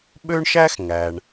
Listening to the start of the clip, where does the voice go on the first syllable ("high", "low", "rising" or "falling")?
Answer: high